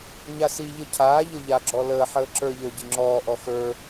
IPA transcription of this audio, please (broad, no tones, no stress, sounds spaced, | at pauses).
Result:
ɲ a s i ʎ ə cʰ aː ʎ ə ʎ a ɡ͡ǁ ɔ l əː ħ əː ǁ ə˞ ʎ ə˞ ɟ i ŋ͡ǁ ɔː ʔ ɔ x ə˞